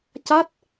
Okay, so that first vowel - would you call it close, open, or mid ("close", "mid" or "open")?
open